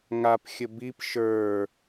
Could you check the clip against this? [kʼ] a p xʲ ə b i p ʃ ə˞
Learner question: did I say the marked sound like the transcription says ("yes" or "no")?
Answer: no